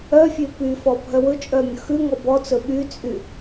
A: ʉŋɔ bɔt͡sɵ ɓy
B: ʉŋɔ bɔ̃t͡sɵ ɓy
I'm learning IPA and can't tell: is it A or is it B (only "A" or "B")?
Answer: A